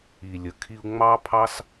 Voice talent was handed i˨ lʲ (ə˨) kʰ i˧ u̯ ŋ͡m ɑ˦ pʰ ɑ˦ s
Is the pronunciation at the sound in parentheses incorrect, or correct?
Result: correct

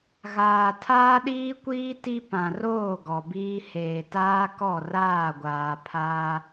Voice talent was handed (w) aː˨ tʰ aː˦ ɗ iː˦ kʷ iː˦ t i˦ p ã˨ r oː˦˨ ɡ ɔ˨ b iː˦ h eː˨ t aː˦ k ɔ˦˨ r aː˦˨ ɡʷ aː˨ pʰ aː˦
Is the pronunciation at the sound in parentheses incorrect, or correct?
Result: incorrect: ɣ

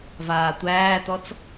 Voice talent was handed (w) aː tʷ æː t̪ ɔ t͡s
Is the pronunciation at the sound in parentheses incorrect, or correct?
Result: incorrect: v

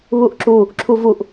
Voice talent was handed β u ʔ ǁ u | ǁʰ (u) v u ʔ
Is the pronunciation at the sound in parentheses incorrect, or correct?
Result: correct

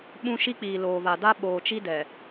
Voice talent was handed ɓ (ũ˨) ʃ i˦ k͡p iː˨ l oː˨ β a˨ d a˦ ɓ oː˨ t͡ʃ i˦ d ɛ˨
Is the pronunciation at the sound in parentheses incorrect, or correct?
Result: incorrect: ũ˦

